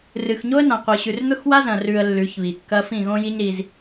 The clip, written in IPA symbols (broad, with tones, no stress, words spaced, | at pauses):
rɨ˨xɲo˦ə̯nã˨ qʷɨ˨ɕʉ˨r n̪ɵ˦xwa˦zɐ̃˨ rʉ˨ə̯ lːʉ˨˦çβi˨ kːɐ˦ fĩ˦˨ɣõ˦ji˦ɲ ɾi˦z